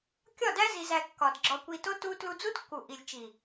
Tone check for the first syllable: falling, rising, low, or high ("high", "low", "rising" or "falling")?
falling